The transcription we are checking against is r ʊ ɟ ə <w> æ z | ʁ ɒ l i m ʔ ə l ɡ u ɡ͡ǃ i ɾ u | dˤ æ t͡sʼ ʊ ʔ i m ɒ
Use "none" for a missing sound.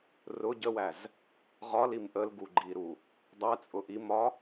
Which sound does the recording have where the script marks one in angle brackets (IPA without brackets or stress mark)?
w